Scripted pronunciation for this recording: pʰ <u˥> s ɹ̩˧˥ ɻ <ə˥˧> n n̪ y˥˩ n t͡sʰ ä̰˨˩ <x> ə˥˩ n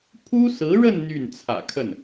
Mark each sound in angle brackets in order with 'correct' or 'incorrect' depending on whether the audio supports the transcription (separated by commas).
correct, correct, incorrect